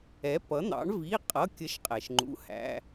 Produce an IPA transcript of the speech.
ɛ˩˥ p ʌ˩˥ n̪ ɑ̰˩˥ ɳ v i˩˧˩ qʼ ʌ˩˧˩ kʲ ə˩˥ ʃ qʼ ɛ˩ ʃ ŋ͡ǃ ṵ˩˥ h æ̰˩˧˩

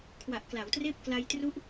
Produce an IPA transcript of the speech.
kʰ w a˨˩ ʔ k l a˩˦ w t r eː˥˩ p̚ k l a˧ j t r u˦˥ ʔ

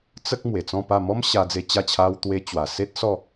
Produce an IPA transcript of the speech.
t͡s ə˦ k̚ m w e˨˩ t͡s ɔ̃˥˧ p a˥˧ m ɔ˦ m ɕ a˧ d͡z e˧ t͡ɕ a˥˧ t͡ɕʰ a˦ w t̪ w e˦ t͡ɕ w a˨˩ s e˦ t̚ s ɔ˥˧

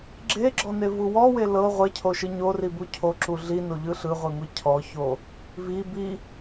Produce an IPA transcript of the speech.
ɡ͡ǁ e ɡ͡ǁ ɔ n e v u w ɔ w e l ɤ ʁʷ e cʰ o ʃ ɯ ɲ o r i b u cʰ o ǁ u ɮ i n o ʎ ɯ ɬ ɯ ʁʷ i ŋʷ i cʰ ɔ ç o | v i b i

